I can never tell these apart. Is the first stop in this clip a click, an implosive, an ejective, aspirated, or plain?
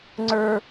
click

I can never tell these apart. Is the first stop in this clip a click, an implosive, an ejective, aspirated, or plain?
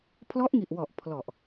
aspirated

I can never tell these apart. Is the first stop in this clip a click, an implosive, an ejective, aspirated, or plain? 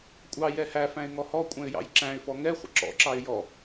ejective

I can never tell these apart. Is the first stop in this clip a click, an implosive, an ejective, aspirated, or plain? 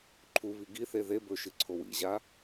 click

